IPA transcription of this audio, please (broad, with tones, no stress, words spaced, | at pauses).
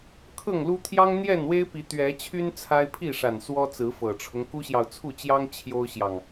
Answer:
kʰɤ˥˨ŋlu˦ t̪ʰjɑ˦ŋ n̪jɛ˥˨nwe˦ɪ̯pi˨˦ t̪ɥɛ˨˦ t͡ɕʰy˦n t͡sʰa˦ɪ̯ pʰi˥˨ʂa˨˩n swɔ˦t͡sɹ̩˨˦fɤ˨˩ʈ͡ʂʰʊ˦ŋ ku˦ɕjɑ˨ʊ̯t͡sʰu˥˨ t͡ɕjɑ˦ŋ t͡ɕʰjo˦ʊ̯ɕjɑ˨ŋ